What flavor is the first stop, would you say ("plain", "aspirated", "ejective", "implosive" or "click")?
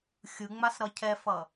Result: aspirated